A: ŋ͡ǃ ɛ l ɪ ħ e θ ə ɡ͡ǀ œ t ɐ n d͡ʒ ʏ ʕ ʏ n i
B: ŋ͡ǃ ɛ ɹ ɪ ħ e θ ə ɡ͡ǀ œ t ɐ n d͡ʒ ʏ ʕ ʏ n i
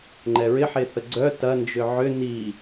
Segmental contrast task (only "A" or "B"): B